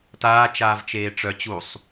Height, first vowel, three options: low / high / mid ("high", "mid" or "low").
low